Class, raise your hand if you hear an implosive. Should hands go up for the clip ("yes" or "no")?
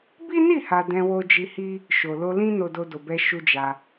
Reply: no